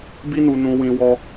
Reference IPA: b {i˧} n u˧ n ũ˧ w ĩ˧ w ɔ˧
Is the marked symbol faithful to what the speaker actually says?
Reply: no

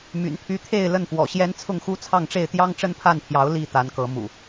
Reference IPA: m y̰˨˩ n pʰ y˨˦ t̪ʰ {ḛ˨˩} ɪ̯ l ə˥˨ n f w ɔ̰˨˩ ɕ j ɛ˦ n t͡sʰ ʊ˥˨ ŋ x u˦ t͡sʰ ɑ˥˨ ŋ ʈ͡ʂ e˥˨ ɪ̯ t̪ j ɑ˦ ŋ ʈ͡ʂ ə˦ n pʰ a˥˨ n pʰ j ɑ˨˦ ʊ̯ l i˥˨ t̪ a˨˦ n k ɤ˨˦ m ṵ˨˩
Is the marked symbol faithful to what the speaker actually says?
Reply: no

